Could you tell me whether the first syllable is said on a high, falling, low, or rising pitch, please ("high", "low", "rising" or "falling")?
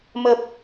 low